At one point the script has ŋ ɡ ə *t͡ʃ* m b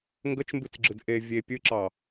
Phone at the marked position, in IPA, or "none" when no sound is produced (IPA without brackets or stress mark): t͡ʃ